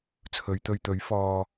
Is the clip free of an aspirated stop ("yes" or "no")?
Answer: no